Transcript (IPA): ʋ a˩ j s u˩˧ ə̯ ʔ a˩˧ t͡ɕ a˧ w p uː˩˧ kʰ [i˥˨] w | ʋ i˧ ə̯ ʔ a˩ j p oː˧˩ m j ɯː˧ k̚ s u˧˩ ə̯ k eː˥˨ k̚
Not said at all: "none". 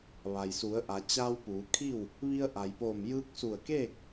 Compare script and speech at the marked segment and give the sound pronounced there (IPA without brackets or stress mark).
i˥˨